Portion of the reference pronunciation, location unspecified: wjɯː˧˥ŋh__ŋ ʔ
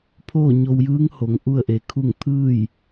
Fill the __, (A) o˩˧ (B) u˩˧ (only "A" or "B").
A